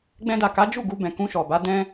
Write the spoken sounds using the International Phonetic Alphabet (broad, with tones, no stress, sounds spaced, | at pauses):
ɡ͡b ɛ̃˧ d a˨ k a˨˦ d͡ʒ u˦˨ ɡ u˧ b ɛ̃˨ k ũ˧ ʃ ɔ˨ b a˨˦ d ɛ̃˦